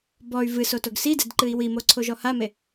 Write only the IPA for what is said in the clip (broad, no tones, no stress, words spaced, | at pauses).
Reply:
bɔy̯ vɨsotoɡ sidɛdǃɨi̯ wimoǀʰoʒɔ hame